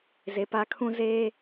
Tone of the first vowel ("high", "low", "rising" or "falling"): low